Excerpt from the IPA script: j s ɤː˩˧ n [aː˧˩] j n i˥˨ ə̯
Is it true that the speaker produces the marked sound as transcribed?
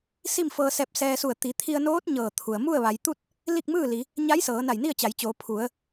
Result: no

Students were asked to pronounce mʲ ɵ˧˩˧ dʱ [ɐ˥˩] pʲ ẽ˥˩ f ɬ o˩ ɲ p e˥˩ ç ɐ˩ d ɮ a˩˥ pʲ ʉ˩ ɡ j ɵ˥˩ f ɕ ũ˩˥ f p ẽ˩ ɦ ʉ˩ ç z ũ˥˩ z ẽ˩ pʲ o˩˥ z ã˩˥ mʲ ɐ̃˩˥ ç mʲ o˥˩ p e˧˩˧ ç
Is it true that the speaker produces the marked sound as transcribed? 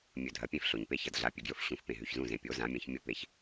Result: no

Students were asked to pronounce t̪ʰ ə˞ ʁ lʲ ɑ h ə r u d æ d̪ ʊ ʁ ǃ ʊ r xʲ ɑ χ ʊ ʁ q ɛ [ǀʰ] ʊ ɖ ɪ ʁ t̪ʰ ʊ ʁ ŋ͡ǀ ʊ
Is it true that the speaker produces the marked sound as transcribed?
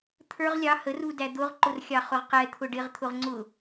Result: no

